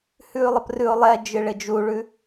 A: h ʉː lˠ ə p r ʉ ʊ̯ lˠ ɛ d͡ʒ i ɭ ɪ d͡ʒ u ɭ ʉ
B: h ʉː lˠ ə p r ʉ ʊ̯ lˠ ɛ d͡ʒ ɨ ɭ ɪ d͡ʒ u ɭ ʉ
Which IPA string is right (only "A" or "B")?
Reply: B